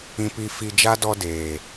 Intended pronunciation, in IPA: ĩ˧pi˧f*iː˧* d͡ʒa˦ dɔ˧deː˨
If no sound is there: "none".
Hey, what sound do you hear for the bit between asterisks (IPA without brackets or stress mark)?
i˧